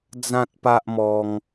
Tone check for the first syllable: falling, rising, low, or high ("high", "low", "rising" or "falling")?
high